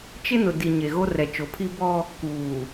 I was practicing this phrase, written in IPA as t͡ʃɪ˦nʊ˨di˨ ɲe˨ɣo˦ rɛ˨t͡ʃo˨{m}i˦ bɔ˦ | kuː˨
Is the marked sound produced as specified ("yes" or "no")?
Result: no